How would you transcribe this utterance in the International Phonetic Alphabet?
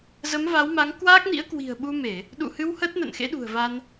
zə˨˦mva˨˦wma˨˦ŋ kwaː˦˥k̚nḭ˧˥ə̯ kwi̤˨˩ə̯ɓu˧me˧˩˨ | ɗṵ˧˨hɨ˧w həː˦˥t̚nə̰ː˧˨nxḛ˧˥ɗṳ˨˩ə̯ va˧n

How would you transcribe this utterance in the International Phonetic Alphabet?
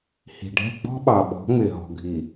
hi̤˨ɖʱɛ̤˦˨ ɡ͡bɔ̤˦ɓɑ˨ɓɔ̤˨˦ ŋ͡mɪ˨ɦɔ̤˨ɡʱi˨

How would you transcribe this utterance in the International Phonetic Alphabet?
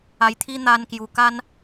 a˧jt̪ʰi˦ n̪a˧nkju˨˩ka˦n

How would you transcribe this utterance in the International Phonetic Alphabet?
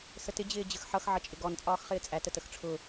sətɪ d͡ʑɪːd͡ʑəxħʌx ʕʌt͡ʃʼɪɡɔn t͡sʼɒːxχɪːt͡sʼæ tətəxʈ͡ʂʰʊ

